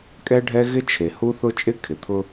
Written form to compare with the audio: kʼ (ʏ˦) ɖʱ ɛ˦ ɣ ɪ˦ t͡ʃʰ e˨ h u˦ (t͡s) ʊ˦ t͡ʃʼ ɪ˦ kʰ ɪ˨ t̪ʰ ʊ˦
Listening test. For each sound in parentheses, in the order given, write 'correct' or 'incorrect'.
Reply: incorrect: ɛ˦, incorrect: θ

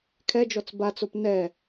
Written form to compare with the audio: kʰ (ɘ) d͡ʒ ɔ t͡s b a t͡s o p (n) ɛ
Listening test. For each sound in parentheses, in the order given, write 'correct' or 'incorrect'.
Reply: incorrect: ɛ, correct

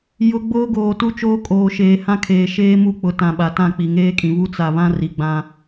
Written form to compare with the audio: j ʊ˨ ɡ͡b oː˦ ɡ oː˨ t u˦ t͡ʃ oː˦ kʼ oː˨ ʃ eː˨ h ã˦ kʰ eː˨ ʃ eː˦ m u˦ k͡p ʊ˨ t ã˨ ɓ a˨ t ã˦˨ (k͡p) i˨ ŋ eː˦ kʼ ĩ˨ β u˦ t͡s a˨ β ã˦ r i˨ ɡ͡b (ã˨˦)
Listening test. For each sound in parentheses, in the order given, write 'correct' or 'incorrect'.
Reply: correct, incorrect: ã˦

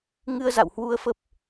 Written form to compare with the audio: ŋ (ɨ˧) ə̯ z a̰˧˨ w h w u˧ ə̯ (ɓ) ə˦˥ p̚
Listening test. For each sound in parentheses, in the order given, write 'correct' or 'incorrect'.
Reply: correct, incorrect: f

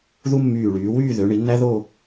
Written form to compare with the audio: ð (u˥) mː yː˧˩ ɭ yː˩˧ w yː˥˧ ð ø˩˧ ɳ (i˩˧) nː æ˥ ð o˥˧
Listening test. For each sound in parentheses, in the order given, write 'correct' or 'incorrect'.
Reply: correct, correct

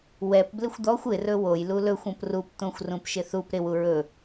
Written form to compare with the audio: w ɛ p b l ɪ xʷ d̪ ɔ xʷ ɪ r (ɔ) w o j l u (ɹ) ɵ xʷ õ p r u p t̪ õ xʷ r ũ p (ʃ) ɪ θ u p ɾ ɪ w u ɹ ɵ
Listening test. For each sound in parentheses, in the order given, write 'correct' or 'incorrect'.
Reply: incorrect: ɵ, incorrect: l, correct

